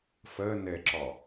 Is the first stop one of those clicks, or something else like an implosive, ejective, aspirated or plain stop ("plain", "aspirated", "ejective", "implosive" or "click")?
click